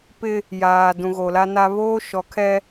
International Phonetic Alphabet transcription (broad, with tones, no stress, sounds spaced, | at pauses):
p ɪ˦ | j aː˨ d ũ˨ ɣ o˨ l a˦ n a˦ β oː˦ ʃ ɔ˨˦ kʰ ɛ˦